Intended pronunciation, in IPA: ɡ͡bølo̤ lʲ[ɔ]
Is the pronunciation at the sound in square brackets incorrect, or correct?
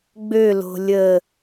incorrect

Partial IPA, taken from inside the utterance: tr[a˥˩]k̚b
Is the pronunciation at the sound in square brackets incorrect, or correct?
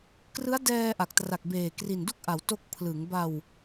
incorrect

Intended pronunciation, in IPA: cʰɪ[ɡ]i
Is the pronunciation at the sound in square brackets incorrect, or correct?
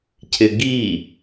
correct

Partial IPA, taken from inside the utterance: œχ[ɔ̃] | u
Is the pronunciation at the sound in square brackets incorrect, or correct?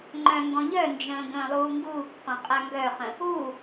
incorrect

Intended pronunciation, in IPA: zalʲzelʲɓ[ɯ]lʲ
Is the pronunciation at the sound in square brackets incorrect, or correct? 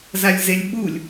incorrect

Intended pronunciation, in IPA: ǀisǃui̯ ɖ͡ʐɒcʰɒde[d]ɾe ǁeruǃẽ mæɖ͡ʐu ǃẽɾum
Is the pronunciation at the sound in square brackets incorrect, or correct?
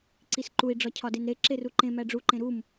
incorrect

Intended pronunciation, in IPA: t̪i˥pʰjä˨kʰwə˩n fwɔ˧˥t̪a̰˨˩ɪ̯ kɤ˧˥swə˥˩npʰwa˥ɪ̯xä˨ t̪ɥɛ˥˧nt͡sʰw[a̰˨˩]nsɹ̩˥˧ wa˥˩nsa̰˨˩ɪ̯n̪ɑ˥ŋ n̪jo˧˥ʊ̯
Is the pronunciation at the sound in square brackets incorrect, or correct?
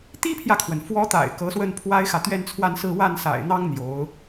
incorrect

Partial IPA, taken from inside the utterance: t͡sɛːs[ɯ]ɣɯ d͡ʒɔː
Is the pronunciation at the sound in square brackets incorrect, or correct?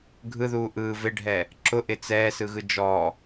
correct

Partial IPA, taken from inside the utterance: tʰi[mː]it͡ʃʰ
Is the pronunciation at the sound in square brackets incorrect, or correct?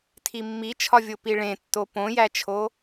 correct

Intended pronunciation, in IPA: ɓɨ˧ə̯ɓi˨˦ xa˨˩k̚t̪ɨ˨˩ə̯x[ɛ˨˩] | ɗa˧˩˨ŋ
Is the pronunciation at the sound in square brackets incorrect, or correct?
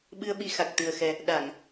correct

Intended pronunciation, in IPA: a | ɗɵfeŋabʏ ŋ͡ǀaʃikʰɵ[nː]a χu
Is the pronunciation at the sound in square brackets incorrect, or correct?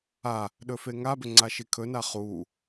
incorrect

